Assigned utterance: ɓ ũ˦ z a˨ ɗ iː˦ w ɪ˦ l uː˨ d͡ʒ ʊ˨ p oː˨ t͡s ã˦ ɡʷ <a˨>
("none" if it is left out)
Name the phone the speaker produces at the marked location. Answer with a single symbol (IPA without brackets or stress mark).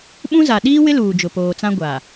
a˨